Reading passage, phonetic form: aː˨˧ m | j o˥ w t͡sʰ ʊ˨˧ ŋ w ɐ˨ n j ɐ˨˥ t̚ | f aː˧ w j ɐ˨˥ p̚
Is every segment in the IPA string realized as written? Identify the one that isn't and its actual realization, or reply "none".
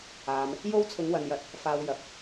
none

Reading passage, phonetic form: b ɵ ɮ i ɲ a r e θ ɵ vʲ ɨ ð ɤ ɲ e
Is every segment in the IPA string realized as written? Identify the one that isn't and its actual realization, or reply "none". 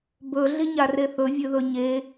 ɤ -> ɵ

